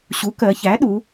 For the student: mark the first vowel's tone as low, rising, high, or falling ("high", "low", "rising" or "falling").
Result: rising